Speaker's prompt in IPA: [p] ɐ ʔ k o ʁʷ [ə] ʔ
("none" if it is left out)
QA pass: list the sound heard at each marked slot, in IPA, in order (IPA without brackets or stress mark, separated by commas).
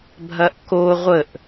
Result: bʱ, ə